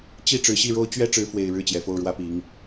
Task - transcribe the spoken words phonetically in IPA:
t͡ɕi˥˩ ʈ͡ʂɻ̩˧˥ɕi˥˩ɻo˥ʊ̯ t͡ɕɥɛ˥ʈ͡ʂɻ̩˧˥fwe˨˩ɪ̯ ɻɻ̩˥˩t͡ɕjɛ˨˩fo˥˩ʊ̯ɻwä˥ pi˧˥ŋ

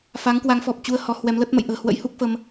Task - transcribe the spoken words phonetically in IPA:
fa˨˦ŋkwa˨˦ŋfɔ˨˩p̚ t͡ɕu˧ə̯hɔ˨˦hwɛ˨˦mlə˦˥t̚ mə̰˧˨jʔə̤ː˨˩hwə̰˧˥j hu˦˥k̚fə˧m

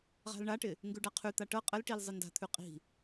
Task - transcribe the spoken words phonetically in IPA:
ʁa̤lɳaʈɪ | ŋɡʉɖaqʰʉt̪a ʈɤ qʼəlʈil zˤɪnda̤t̪ʰʉ qʼi̤

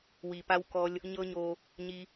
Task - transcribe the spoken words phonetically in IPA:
wi˨ pa˦wkɔ˦lʲ | ɲɤ˦ɲo˧ | ɲi˧

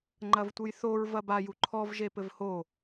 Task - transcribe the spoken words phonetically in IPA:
ŋ͡ǃɐvtʷɨjθoɹ vɐbaju ǃʰɔvʒe pɘvho

